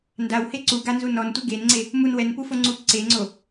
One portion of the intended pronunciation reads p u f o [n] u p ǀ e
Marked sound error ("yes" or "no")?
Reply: yes